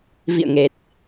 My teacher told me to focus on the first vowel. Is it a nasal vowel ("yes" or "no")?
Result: no